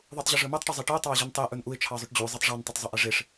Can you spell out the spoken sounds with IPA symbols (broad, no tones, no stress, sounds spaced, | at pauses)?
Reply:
ðˤ u tˤ ʑ ə ʐ ɵ m ɵ tˤ ʈ ʊ zˤ e ʈ ə ʊ̯ tˤ ɑ ɪ̯ ʑ ɵ n tˤ e ʔ ɵ n ʔ u ɪ̯ t͡ʃʰ ɑ zˤ ɵ ʈ d͡ʑ u zˤ e tˤ ʐ ɑ n tˤ ɵ tˤ zˤ ʊ ʔ e ʐ e ʂ